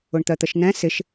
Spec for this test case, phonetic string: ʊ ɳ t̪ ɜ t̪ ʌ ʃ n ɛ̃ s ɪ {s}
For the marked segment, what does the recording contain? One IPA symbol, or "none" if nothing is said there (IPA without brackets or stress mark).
ʃ